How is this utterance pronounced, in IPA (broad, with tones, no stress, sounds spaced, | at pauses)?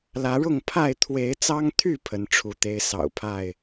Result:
l ä˨˦ ɻ ʊ˥˨ ŋ pʰ a˥˨ ɪ̯ t̪ʰ w e˨˦ ɪ̯ t͡s ɑ˦ ŋ t̪ʰ y˥˨ pʰ ə˨˦ n ʈ͡ʂʰ u˨˦ t̪ e˦ ɪ̯ s ɑ̰˨˩ ʊ̯ pʰ a˥˨ ɪ̯